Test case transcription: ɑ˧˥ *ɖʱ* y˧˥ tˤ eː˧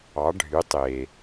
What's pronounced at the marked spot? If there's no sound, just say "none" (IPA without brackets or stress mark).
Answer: ɖʱ